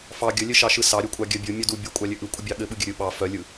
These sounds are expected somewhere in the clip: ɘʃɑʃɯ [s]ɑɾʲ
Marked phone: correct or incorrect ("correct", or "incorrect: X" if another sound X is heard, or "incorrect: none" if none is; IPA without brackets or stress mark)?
correct